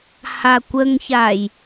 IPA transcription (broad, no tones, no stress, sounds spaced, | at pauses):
h a kʷ ə ŋ ç a j